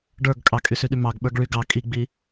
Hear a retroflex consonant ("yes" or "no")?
yes